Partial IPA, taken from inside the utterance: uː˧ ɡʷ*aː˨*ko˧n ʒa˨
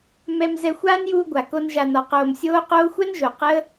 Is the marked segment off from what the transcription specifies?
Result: yes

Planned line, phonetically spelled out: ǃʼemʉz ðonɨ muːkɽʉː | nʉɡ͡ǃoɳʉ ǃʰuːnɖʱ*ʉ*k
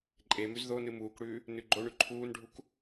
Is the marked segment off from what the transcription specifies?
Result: yes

